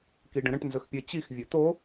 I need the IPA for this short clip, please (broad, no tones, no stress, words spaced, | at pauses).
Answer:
kiɖə̃ɾə̃ʈ nzɵxpʲɘ t͡ɕix vʲɵt̪o